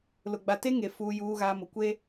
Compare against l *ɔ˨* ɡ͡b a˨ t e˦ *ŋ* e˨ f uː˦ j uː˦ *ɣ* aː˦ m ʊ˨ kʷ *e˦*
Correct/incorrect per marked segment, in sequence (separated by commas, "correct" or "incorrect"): incorrect, correct, correct, correct